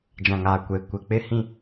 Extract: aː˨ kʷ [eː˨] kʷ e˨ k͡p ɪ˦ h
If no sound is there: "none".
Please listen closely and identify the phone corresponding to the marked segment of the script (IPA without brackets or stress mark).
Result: eː˨